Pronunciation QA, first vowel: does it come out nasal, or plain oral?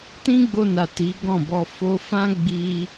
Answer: nasal